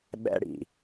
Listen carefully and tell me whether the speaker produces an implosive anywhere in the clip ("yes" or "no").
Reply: yes